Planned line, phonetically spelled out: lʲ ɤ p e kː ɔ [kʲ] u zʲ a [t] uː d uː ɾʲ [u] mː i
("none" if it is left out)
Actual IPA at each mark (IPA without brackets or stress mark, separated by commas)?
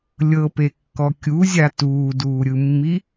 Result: kʲ, t, ɯ